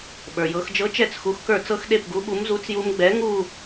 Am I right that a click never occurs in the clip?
yes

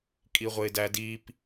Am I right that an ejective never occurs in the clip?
no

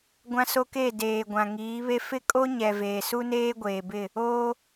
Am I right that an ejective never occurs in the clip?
no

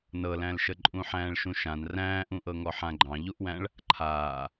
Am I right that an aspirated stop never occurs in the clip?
no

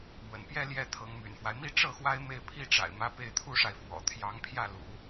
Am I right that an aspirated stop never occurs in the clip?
no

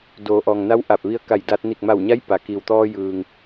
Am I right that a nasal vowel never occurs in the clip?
yes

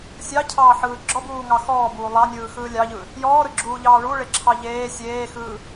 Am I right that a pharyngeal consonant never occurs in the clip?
no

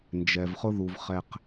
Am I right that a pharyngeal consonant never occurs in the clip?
yes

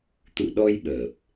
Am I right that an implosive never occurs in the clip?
no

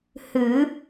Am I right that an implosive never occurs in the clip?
yes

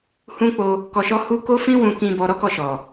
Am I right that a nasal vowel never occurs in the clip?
no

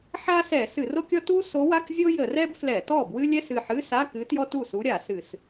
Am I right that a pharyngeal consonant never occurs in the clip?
no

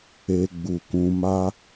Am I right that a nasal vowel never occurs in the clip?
no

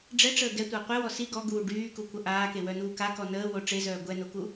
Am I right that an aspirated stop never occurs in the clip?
yes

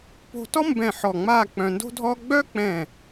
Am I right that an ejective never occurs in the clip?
yes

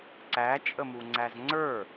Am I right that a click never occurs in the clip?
no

